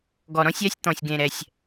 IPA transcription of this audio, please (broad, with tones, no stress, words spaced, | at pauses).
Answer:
ɡɔ˨ɾɔ̃˦sʲa˨˦sʲ t̪ɔ̃˨sʲɡẽ˨ɾɛ˨sʲ